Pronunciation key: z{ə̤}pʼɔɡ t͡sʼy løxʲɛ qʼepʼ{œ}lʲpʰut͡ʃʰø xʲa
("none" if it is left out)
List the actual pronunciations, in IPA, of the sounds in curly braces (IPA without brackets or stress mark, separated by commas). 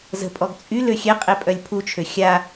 ə̤, œ